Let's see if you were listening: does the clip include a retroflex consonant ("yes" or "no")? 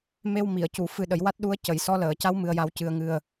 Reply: no